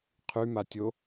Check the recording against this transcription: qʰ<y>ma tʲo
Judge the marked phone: correct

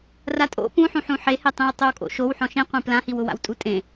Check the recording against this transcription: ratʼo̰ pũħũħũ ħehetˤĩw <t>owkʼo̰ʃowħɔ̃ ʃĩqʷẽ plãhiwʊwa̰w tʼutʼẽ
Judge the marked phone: incorrect: tˤ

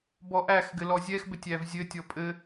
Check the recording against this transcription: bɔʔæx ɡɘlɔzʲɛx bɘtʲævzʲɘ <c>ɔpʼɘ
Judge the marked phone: incorrect: tʲ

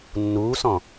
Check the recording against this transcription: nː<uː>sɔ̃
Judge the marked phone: correct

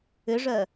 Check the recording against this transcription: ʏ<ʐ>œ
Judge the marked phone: correct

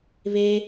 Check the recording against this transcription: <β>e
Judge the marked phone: correct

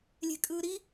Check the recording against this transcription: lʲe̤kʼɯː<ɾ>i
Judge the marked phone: correct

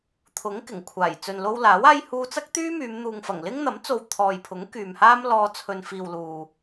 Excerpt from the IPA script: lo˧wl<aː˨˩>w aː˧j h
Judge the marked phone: incorrect: aː˨˥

